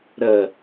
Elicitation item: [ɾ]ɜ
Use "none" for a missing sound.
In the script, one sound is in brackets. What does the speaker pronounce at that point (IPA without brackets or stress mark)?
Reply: ɾ